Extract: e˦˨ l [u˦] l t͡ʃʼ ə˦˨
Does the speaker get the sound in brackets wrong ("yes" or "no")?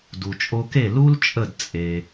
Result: no